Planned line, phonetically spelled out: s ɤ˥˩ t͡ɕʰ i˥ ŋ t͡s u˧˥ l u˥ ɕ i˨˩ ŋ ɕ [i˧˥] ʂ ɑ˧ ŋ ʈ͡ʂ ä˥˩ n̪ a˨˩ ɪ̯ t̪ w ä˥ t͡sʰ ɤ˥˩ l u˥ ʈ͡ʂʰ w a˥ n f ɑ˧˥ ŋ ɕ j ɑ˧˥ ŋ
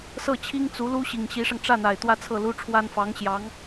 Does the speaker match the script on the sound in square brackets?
yes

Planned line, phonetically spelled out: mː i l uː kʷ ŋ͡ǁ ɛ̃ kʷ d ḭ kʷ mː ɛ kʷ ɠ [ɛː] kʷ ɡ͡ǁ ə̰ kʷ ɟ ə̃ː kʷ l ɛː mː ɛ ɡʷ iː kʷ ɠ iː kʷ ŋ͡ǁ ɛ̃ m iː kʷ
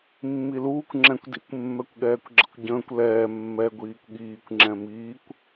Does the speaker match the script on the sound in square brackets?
yes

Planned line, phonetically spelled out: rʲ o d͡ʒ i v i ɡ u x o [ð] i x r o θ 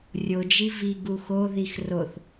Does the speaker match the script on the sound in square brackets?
yes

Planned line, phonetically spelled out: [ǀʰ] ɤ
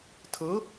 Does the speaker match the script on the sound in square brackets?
no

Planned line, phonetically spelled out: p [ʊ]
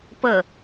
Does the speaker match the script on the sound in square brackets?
no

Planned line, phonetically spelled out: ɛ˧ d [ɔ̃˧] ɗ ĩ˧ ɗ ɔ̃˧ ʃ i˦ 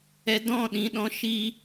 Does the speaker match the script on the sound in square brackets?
no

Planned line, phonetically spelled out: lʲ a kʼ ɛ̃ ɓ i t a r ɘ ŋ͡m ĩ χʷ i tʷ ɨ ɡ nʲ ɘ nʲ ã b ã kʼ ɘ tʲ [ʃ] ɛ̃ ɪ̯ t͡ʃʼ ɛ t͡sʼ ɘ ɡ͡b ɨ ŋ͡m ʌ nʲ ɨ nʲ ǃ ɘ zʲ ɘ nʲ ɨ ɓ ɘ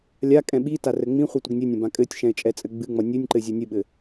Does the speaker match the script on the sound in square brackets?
yes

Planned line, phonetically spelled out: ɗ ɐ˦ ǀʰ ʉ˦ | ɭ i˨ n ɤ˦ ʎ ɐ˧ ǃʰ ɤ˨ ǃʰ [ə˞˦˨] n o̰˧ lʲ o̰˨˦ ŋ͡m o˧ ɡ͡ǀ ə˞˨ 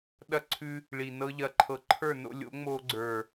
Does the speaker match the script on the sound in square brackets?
yes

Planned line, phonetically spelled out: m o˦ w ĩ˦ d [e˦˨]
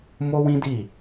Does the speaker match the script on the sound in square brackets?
no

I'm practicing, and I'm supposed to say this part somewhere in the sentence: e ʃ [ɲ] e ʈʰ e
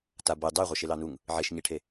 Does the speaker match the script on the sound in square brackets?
yes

